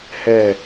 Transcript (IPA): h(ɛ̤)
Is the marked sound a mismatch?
yes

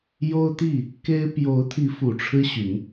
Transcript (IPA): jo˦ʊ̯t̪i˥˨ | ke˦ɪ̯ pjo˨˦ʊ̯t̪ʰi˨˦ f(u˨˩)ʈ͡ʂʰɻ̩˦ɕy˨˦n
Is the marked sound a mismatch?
no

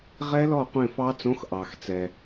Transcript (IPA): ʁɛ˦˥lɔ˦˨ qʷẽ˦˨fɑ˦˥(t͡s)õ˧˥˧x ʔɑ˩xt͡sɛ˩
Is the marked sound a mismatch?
no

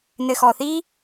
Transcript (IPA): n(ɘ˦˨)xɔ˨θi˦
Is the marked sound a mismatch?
yes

